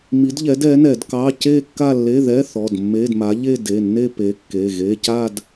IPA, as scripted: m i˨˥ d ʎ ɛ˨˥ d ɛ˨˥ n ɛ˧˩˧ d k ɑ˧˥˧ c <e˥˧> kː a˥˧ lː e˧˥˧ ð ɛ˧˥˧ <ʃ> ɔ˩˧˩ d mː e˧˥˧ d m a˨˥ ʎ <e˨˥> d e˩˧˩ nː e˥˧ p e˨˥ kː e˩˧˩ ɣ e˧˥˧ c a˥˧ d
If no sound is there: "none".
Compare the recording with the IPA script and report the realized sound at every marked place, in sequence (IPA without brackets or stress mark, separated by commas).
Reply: e˥˧, θ, e˥˧